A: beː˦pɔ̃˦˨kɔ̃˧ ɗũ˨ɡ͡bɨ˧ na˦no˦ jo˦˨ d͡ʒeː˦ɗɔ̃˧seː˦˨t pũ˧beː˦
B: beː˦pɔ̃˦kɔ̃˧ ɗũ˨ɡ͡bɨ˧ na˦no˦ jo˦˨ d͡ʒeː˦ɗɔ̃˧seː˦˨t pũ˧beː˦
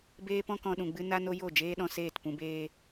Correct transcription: B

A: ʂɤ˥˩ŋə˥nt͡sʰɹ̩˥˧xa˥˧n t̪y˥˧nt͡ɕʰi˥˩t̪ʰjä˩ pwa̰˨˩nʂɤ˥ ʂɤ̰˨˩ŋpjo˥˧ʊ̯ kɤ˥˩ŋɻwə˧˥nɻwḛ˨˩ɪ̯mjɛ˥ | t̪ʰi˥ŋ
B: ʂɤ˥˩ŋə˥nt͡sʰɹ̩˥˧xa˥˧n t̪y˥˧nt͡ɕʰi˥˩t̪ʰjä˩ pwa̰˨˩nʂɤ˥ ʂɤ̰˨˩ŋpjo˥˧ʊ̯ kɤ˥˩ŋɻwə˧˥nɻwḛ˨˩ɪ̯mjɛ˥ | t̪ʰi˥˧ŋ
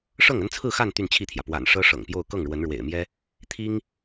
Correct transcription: A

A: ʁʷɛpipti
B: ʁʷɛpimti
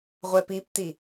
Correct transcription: A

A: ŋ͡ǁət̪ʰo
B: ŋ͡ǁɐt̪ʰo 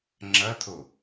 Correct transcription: B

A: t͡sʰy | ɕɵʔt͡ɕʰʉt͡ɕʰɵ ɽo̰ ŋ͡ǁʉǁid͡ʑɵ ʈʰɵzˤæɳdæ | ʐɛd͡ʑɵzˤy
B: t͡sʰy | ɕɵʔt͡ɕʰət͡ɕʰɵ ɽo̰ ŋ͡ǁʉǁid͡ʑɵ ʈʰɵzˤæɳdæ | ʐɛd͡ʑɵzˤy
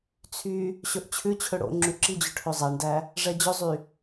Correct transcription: A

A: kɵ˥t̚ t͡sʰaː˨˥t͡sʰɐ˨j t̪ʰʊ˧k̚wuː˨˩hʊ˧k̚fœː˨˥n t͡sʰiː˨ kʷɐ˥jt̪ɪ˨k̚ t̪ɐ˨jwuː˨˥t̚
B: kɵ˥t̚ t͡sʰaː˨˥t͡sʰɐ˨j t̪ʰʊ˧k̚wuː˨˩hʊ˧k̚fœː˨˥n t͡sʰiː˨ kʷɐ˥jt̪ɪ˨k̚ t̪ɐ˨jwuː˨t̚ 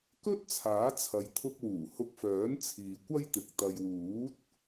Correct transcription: A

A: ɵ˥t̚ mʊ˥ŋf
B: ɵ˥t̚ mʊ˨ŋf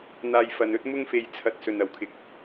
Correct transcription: A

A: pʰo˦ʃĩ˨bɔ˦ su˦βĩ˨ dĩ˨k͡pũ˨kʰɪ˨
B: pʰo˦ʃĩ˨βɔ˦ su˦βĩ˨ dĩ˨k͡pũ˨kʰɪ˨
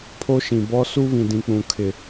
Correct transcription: A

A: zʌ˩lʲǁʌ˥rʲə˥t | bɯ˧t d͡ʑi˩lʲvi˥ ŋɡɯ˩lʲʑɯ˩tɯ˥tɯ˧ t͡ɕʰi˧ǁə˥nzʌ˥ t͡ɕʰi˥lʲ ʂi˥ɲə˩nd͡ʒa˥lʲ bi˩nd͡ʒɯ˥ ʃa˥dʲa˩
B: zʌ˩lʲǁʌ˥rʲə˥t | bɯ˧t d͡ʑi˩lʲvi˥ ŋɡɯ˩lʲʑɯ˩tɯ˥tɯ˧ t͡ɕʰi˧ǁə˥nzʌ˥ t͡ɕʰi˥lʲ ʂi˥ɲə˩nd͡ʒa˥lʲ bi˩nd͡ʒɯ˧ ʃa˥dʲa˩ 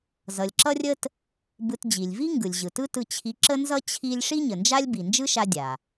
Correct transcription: A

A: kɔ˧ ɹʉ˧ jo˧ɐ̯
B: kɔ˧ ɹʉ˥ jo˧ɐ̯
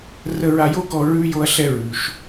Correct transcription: A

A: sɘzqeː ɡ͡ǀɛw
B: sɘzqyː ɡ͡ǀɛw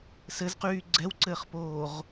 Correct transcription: B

